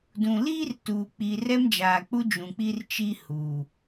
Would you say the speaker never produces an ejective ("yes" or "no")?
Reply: yes